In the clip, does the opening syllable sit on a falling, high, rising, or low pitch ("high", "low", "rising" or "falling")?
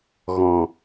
low